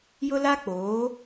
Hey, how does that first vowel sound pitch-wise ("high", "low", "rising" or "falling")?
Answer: high